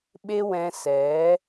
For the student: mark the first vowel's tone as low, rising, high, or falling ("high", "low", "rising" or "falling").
high